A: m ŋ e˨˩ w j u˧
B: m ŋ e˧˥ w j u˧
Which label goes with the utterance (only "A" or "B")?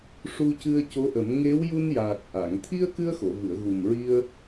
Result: B